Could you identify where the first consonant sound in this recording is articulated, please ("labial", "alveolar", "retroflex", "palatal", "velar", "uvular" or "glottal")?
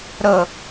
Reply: alveolar